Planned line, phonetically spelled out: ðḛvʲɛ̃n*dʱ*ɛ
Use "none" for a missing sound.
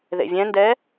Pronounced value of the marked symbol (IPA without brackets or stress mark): d